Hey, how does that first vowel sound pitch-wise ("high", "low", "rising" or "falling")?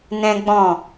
high